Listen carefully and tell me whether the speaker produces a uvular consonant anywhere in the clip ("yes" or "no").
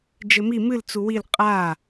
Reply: yes